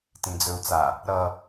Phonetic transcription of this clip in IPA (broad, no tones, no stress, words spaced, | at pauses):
tĩd͡zɵu̯t͡sa | ɾʌ